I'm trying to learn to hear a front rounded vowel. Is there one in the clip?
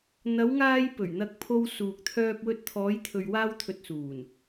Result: yes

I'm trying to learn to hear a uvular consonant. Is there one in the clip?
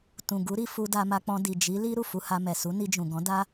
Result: no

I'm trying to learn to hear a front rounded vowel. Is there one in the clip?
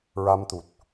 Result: no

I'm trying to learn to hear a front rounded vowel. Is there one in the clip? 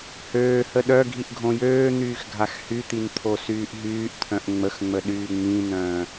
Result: yes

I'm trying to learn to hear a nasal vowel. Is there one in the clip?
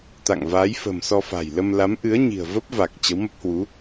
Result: no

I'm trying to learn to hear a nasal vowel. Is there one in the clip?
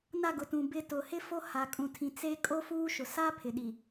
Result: yes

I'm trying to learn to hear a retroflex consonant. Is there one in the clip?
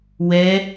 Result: no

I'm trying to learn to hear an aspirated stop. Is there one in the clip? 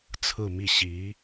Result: yes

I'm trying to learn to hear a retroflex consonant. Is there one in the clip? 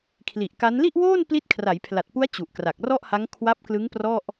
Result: no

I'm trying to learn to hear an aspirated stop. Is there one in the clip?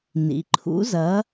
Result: yes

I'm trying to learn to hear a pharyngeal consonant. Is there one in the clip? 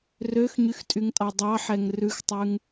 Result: yes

